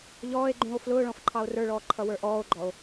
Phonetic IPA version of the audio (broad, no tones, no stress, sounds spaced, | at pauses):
ʎ ɔː e̯ ɡ͡ǃ ũ o̯ f l ʊː ɭ ɔ̃ f ǃʰ ɑ o̯ r ə˞ ɭ ɔː ǃʰ ʌ w ə˞ ʔ ɔː o̯ ɡ͡ǃ ɔ o̯